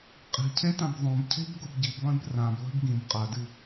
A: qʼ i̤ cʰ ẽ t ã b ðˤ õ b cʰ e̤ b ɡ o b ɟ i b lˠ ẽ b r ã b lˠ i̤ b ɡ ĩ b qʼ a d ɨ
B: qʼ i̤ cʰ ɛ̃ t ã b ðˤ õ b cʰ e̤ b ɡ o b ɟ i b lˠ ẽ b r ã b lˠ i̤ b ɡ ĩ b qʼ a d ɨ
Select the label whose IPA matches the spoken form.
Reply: A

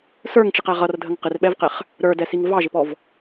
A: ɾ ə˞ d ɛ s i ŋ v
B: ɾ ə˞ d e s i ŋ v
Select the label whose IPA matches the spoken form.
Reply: A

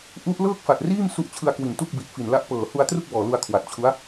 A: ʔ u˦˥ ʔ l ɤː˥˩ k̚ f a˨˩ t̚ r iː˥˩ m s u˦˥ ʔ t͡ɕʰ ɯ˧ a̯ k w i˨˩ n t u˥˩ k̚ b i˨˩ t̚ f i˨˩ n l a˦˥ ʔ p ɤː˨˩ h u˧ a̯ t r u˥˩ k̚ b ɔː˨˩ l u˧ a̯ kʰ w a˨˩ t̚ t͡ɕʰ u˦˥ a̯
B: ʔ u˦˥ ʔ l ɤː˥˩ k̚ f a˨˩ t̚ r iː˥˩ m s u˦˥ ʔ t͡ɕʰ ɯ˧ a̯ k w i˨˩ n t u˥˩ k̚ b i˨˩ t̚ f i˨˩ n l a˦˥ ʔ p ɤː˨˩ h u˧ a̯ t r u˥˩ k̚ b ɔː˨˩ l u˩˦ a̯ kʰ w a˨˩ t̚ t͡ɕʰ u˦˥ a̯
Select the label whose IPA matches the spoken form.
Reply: A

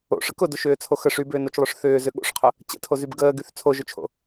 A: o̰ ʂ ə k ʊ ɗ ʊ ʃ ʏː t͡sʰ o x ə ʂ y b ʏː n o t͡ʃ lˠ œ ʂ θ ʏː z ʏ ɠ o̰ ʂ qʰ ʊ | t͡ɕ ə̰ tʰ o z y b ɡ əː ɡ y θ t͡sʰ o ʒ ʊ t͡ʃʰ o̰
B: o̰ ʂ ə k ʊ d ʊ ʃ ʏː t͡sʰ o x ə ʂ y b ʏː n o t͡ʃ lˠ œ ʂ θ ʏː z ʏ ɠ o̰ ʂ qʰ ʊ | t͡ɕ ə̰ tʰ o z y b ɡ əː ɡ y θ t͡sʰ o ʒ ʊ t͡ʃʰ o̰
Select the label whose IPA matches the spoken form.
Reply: B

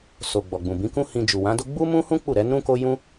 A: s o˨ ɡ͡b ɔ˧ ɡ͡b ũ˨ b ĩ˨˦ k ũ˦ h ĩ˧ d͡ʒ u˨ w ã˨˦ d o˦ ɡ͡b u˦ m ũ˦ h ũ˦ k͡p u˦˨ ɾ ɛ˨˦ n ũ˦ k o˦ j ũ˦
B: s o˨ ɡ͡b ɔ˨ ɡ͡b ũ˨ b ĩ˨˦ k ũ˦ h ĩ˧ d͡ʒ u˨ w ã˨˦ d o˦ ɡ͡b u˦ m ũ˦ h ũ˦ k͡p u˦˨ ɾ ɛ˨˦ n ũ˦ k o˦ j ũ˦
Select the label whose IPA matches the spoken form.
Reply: B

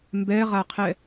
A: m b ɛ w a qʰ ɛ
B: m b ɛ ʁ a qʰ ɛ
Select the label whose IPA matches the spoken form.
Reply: B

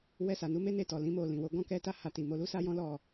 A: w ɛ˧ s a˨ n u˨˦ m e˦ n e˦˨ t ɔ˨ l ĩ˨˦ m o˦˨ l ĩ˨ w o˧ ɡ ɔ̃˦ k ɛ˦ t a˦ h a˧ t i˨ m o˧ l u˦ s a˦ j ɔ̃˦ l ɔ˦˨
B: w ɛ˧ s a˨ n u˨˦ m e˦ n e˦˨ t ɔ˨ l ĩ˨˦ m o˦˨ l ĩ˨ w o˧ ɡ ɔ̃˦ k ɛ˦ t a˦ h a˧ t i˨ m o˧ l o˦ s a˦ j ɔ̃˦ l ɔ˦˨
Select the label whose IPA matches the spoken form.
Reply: A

